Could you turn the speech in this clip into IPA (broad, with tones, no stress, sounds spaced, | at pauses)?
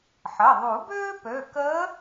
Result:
ħ ə˩˧˩ ðˤ u˨˩˦ b øː˥ p ø˩˧˩ k əː˧˥